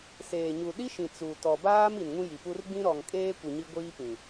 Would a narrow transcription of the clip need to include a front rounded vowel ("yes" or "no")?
no